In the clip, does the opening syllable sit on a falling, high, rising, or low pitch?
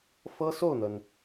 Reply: high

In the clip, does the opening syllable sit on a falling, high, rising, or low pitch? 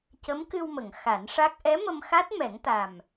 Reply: rising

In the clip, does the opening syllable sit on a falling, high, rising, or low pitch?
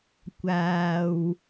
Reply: low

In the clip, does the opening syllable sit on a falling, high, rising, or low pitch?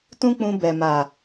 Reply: high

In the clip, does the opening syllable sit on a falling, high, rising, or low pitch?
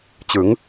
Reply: rising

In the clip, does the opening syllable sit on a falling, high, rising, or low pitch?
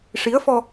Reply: rising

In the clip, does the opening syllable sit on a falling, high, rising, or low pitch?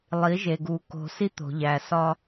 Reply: rising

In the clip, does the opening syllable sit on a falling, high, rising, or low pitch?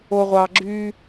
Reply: low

